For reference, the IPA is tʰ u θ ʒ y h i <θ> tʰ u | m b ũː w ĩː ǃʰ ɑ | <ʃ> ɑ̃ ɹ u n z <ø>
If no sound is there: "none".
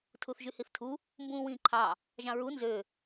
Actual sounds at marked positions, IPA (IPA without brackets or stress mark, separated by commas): θ, ʒ, ø